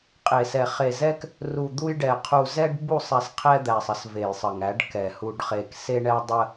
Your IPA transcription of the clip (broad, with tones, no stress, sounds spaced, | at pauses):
qʼ e˨ s ɛ˨ χ e˨ z ɛ˦ k | r u˨ d̪ u˦ j ɖ ɛ˨ qʰ u˨ z ɛ˦ ɖ b u˦˨ sˤ ɛ˨ s qʰ ɛ˦ d̪ æ˨ sˤ ə˦ s v e˨ j sˤ ə˨ ŋ æ˨˦ ɖ k ɛ˨ h u˨ ɖ χ e˨ k s e˦ ɳ ɛ˦ w dˤ ə˦